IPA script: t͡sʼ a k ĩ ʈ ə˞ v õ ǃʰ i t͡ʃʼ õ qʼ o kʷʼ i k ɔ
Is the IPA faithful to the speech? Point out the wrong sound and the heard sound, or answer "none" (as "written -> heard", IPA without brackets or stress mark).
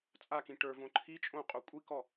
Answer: none